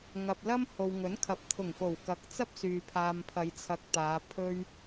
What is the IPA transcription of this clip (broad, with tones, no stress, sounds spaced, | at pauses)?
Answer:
ŋ ɐ˨ p̚ l ɐ˥ m h o˨ w ŋ ɵ˨˥ n kʰ ɐ˨˥ p̚ t̪ʰ ʊ˨˩ ŋ f o˨˩ w k ɐ˨˥ k̚ t͡s ɐ˥ p̚ s yː˨ pʰ aː˨ m pʰ ɐ˨˧ j t͡sʰ ɐ˨ k̚ t̪ aː˨˧ pʰ ɵ˥ ɥ